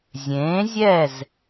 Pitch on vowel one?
rising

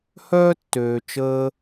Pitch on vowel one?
high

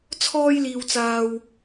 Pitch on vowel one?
high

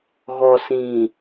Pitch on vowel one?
low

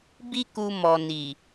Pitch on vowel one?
high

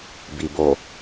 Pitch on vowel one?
low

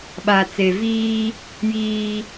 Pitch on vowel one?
low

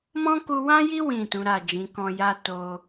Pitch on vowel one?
high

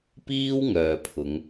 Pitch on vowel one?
high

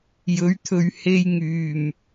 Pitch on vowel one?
rising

